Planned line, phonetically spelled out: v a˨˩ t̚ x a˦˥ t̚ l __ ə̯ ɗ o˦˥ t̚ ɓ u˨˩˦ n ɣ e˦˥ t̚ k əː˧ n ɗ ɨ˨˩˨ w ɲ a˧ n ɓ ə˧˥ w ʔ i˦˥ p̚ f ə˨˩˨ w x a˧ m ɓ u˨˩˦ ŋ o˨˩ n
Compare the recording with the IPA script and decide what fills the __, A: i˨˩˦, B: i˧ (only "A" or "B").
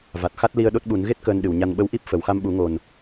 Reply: B